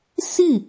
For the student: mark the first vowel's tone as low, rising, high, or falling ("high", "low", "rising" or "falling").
falling